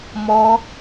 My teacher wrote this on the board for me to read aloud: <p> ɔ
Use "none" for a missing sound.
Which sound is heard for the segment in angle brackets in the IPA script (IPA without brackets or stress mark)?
m